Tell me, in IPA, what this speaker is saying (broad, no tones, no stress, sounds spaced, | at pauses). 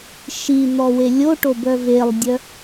ʃ i n̪ ɔ w e lʲ o ʈ o b œ v e lˠ dʲ œ